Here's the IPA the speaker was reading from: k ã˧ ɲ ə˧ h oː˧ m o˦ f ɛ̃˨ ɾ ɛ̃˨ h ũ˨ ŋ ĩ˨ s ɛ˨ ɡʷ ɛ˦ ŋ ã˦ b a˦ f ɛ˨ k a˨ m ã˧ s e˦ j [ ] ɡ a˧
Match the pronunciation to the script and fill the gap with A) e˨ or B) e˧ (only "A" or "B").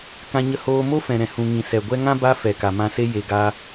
A